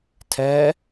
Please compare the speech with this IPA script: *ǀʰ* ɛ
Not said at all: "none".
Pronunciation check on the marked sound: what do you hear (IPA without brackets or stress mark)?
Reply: tʰ